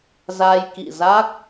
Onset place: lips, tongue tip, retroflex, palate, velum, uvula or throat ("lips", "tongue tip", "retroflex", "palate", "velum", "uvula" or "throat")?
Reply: tongue tip